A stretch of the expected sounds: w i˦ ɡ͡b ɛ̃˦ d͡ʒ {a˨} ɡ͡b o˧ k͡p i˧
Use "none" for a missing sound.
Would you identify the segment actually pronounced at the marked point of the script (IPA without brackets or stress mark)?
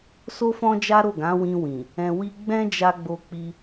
a˧